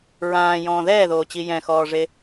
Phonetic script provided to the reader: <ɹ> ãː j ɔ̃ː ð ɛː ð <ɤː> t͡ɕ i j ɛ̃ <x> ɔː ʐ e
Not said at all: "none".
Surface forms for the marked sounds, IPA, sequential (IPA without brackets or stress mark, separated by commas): ɹ, oː, x